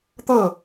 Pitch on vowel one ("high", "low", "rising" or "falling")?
falling